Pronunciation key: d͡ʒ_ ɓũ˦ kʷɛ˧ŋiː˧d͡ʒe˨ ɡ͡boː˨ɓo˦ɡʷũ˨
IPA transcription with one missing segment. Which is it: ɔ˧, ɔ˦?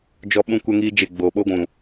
ɔ˧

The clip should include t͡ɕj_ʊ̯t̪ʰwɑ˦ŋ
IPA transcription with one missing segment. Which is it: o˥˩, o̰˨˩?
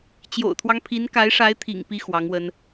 o̰˨˩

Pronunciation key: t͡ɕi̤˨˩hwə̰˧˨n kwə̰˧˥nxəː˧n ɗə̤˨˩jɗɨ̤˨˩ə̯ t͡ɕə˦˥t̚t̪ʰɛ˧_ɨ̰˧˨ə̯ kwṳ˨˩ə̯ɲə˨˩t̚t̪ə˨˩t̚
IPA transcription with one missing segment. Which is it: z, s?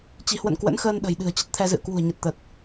z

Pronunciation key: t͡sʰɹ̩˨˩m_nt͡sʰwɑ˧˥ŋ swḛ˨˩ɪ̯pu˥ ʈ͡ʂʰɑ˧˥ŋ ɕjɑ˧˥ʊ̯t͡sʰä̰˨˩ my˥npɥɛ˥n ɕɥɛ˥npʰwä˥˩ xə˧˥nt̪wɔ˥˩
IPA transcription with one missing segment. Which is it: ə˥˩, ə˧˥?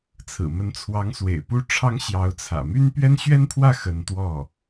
ə˧˥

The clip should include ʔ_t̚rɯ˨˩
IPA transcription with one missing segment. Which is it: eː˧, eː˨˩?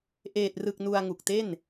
eː˨˩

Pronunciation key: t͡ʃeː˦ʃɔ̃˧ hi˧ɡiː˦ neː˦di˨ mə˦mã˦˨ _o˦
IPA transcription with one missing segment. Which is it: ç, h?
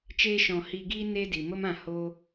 h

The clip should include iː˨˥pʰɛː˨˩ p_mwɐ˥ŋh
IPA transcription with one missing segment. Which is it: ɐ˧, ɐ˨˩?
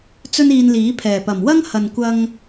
ɐ˨˩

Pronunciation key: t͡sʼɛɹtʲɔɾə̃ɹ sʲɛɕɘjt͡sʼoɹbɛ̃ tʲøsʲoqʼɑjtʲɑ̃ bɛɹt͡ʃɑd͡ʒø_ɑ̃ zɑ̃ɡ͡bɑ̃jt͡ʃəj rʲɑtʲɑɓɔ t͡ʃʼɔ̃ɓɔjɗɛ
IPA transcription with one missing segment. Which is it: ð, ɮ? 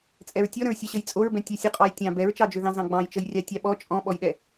ð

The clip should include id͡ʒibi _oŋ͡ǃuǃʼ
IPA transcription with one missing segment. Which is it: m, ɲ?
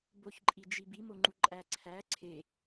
m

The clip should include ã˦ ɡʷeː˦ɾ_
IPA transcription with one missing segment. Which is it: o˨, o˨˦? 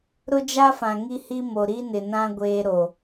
o˨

